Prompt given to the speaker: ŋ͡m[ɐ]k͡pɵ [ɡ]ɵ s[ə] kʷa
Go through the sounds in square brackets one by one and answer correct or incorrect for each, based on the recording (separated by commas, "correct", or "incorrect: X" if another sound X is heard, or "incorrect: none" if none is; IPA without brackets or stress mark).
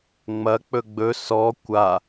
correct, incorrect: ɡ͡b, incorrect: ɔ